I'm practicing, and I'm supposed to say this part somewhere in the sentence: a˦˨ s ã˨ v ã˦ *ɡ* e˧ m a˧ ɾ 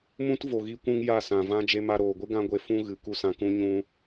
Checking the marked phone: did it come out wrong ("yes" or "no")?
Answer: yes